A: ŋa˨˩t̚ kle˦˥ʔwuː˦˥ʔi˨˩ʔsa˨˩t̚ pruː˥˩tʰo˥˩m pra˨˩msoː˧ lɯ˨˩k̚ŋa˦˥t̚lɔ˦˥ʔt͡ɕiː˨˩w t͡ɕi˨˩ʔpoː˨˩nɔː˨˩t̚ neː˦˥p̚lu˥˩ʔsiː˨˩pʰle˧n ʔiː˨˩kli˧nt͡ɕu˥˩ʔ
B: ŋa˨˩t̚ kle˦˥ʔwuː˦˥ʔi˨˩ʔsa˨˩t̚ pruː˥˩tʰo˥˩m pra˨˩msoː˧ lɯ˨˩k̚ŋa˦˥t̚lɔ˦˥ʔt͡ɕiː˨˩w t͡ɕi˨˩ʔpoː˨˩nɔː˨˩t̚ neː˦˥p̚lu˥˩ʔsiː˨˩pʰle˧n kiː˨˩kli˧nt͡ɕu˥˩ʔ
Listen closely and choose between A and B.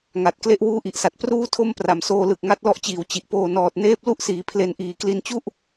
A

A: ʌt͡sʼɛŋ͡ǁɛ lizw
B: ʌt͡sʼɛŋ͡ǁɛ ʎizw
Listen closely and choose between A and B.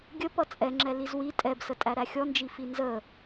A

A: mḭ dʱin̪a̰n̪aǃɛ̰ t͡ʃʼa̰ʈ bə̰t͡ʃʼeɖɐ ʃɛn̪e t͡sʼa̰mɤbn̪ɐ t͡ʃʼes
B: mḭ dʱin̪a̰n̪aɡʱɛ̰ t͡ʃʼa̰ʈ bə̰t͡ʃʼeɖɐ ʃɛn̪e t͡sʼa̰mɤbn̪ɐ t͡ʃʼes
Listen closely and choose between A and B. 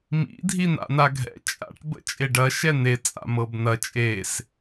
B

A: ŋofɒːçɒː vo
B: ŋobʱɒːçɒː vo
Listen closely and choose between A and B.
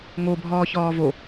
B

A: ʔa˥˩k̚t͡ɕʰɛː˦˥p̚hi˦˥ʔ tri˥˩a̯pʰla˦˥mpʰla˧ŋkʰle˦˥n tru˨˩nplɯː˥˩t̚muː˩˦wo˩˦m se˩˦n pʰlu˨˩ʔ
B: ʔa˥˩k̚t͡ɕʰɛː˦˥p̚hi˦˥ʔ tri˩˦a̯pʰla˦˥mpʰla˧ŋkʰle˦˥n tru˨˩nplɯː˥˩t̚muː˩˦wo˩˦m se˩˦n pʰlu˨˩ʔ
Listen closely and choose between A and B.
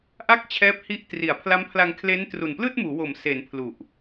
B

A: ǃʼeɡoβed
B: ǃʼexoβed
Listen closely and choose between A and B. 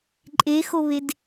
B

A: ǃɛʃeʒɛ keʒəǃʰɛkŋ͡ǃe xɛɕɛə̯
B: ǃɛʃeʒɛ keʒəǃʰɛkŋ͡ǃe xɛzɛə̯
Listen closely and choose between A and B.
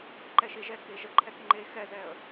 B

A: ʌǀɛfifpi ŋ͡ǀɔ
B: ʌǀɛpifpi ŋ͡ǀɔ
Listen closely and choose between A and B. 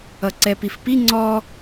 B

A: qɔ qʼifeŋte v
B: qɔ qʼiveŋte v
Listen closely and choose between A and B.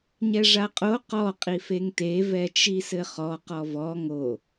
A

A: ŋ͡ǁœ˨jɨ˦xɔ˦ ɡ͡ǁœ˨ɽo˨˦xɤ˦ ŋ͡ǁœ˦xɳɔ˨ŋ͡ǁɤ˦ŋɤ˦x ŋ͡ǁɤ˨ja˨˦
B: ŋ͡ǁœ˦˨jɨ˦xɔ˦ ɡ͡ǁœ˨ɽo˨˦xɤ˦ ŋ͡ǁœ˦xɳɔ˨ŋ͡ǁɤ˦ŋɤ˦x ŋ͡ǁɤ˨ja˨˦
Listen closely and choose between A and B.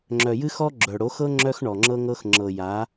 A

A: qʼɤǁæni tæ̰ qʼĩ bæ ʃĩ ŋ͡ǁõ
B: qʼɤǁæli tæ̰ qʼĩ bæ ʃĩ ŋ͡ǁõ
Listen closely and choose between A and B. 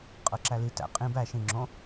B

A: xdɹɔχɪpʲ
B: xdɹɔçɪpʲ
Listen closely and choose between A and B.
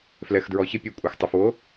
B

